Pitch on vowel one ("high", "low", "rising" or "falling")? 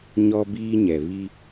high